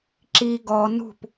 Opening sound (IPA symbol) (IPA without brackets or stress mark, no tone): ǁ